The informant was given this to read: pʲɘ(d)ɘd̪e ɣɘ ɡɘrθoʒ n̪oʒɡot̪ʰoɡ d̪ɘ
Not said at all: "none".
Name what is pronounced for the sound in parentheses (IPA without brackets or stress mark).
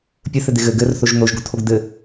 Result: θ